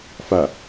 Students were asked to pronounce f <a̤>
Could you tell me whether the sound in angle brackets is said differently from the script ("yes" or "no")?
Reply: yes